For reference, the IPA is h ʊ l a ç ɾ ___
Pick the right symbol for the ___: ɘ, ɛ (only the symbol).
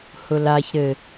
ɘ